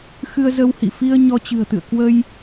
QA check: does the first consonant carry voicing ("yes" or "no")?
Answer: no